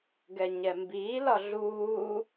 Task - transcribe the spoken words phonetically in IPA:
ɡ ɛ ɲ ɛ m b iː l ɒ ɮ uː

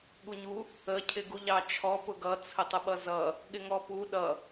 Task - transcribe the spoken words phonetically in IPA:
ɠ u ɲ u | ə cʰ ɪ ɡ u ʎ ɑ t͡ʃʰ ɔ p ʊ ɡ ʌ t͡sʰ ə tˤ ə ɓ ʌ z ʌ | ɠ ɪ ŋ ɔ p u ɗ ʌ

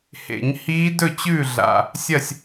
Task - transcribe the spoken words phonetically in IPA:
h ḛ˨˩˦ ɲ h iː˦˥ d ɵ˥˨ t͡ɕ ʉː˥˨ ɮ a̰˨˩ | sʲ ɐ˥˨ sʲ

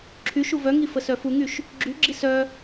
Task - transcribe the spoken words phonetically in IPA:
ǁʰ y ʃ u v œ ŋ i f ə s œ f u ŋ y ʃ | ɡ͡ǁ y ɡ͡ǁ i s œ

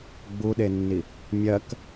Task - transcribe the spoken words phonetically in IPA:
ɡ͡b u ɗ e nː i | mʲ ɜ k

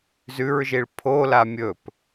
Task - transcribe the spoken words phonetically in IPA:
z ʉ ɹ ʒ i ɭ pʰ o l a mʲ ɵ p

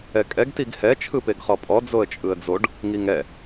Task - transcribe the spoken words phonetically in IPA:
ɛ kʼ ɛ ɡ t i ɡ h ɛ t͡ʃʰ ɯ p e ɡ χ ɔ pʼ ɔ d͡z o ə̯ t͡ʃʼ ɯ ə̯ d͡z o ɖ | ŋ i ŋ ɛ

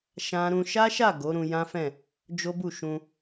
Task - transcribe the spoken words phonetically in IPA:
ʃ ã˦ ɾ ũ˦ ʃ a˦ ʃ a˦˨ ɡ o˨˦ ɾ ũ˧ j ã˦ f ɛ̃˦˨ | d͡ʒ o˦ b u˦˨ ʃ ũ˧

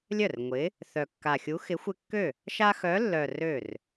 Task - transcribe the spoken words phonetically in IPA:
lʲ œ˥˩ r ŋʷ ɪ˨˥ | θ œ˨˩ kː a˨˩ xʲ u˨˥ x ɪ˨˥ xʷ ɪ˦ kː ø˥˩ | ʃ a˦ x œ˨˥ lː œ˨˩ r ø˥˩ r

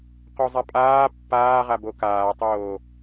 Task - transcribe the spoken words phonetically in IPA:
q o zˤ a pʼ aː pː aː ʁ a b o k aː tˤ oː

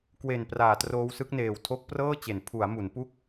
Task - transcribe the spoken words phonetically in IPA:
k w e˨˩ n p r aː˨˩ t r oː˦˥ w s ɯ˦˥ k̚ n eː˨˩ w tʰ o˦˥ k̚ p r ɤː˥˩ t͡ɕ e˩˦ n pʰ u˩˦ a̯ m u˩˦ n p u˥˩ k̚

